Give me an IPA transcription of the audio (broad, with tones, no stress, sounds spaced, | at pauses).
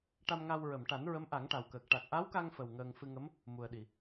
ʈ a˧ m ŋ a˧ w ɹ ə˨˩˨ m ʈ a˨˩˦ n ɹ ə˧˥ m ʔ a˨˩˦ ŋ ʈ a˨˩ w k əː˨˩ k̚ ʈ a˨˩ k̚ ʔ a˧˥ w k a˧ ŋ f ə˨˩ w ŋ əː˧ ŋ f ɨ˧ ŋ ə˧˥ m | m u˨˩ ə̯ ɗ i˨˩˨